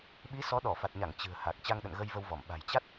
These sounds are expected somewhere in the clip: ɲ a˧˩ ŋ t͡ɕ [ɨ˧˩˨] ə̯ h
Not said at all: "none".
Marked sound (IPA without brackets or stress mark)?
ɨ̤˨˩